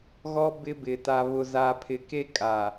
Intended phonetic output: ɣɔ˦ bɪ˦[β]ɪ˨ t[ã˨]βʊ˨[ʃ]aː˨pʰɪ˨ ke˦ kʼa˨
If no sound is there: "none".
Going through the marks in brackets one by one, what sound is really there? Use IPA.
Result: b, a˨, z

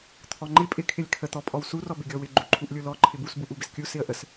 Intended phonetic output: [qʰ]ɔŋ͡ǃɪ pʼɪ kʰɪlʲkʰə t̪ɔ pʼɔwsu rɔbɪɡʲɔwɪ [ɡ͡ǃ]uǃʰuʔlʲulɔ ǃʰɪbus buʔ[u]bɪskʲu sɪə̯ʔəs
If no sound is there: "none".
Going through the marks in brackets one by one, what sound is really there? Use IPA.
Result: t̪ʰ, ɡ͡ǃ, u

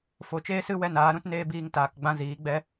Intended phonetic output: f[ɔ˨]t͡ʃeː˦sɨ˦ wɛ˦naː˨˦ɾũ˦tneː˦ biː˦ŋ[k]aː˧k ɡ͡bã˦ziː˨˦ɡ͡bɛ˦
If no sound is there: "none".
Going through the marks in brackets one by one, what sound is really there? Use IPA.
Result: o˨, t

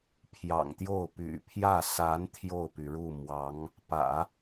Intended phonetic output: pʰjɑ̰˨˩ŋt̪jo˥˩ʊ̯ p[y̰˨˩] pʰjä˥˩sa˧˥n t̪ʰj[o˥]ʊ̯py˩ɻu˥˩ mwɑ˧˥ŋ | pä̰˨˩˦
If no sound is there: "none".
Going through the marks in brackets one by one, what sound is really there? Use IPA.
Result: y̰˨˩, o˥˩

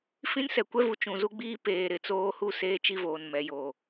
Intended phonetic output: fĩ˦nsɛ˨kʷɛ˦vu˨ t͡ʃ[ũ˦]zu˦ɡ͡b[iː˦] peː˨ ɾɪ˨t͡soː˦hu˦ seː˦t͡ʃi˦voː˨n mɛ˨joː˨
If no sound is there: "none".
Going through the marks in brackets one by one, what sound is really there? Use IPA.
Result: ũ˨, iː˦

